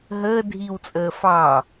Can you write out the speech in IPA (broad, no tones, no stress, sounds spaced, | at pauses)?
ɦ əː dʱ i w t͡sʼ əː f ɑ